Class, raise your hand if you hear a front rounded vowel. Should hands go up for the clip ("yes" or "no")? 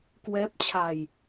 no